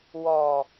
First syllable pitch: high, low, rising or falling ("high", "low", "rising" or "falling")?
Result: low